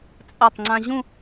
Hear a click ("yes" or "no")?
yes